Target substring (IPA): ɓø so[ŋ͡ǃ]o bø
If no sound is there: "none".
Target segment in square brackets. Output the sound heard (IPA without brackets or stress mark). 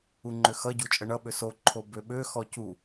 ǃʰ